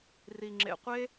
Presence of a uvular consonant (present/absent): present